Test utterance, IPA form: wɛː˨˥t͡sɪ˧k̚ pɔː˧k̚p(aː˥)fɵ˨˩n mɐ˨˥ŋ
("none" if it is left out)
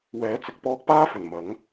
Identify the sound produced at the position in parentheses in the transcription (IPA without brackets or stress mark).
aː˥